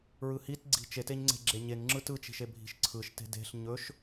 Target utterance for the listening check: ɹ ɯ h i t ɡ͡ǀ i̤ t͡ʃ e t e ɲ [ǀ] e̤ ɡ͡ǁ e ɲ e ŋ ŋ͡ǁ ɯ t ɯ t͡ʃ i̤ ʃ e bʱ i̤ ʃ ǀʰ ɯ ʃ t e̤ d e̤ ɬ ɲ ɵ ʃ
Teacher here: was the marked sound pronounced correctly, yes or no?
no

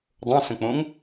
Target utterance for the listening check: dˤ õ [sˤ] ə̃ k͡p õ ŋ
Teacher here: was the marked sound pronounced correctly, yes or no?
no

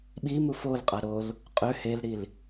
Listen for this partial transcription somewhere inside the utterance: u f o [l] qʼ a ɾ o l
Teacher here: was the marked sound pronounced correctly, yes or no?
yes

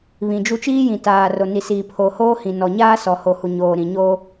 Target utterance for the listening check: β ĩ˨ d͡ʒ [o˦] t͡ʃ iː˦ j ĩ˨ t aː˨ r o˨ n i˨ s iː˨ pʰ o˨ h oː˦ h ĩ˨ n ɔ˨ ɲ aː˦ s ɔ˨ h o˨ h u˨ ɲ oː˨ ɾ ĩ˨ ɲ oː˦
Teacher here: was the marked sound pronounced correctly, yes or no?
no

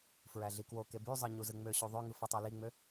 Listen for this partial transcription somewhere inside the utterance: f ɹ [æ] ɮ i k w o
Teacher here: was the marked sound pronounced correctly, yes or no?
yes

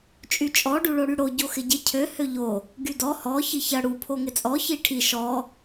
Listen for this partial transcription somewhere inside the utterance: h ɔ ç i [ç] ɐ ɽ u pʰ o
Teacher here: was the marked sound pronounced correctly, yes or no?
yes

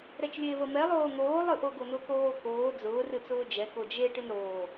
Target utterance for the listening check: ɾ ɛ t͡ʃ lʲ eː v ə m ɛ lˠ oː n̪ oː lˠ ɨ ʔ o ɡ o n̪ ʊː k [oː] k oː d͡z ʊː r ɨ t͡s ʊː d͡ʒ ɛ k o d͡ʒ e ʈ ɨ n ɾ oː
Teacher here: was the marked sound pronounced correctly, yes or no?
yes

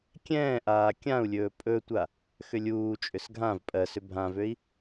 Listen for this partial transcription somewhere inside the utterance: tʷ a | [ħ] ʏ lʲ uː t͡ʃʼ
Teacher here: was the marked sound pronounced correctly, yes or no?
no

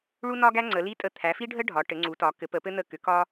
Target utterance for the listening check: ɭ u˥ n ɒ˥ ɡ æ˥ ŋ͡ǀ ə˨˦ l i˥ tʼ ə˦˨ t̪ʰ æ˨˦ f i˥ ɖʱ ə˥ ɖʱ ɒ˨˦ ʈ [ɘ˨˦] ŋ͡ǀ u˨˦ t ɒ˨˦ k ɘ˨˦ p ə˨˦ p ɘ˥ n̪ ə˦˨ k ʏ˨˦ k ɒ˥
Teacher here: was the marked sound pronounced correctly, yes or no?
yes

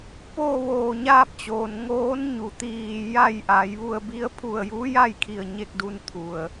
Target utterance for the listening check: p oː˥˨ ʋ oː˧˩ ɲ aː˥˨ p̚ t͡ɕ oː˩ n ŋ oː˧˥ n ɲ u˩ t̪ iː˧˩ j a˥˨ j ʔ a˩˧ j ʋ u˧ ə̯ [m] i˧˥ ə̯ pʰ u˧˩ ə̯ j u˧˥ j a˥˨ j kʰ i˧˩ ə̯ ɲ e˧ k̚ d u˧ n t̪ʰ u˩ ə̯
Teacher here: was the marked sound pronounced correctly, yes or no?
no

